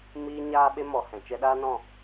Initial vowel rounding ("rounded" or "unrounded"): unrounded